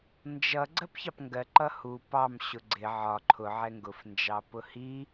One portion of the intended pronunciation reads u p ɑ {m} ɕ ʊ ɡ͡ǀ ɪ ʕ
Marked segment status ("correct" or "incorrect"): correct